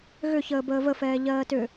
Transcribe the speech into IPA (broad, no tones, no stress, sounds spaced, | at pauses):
ɣ ʏ ç əː b əː v ə f ɛː ʎ ɜː t ʏ